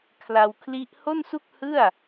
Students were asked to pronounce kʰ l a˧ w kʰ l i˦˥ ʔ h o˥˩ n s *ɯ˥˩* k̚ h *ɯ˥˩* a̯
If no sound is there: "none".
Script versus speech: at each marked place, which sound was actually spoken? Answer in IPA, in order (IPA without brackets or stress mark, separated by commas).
u˥˩, ɯ˥˩